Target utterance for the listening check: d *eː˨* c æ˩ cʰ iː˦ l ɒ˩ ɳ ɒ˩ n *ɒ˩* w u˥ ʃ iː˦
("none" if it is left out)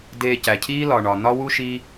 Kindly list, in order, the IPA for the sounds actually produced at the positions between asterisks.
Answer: eː˨, ɒ˥

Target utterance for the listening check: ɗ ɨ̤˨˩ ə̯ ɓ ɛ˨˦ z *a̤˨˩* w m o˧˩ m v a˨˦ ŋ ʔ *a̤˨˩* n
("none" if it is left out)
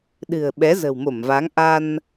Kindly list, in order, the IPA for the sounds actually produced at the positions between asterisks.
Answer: ə̤˨˩, a˧

